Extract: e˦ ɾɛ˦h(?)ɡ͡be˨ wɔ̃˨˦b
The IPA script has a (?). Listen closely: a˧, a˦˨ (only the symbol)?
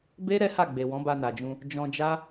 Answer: a˦˨